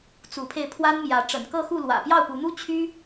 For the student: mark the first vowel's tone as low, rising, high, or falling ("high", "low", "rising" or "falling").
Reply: rising